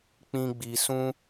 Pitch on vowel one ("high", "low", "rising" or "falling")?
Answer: high